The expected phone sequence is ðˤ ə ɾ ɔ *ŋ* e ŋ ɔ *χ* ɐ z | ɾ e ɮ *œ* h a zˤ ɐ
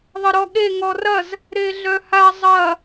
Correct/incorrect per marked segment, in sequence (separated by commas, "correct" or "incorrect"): incorrect, incorrect, correct